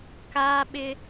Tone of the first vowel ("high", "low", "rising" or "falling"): high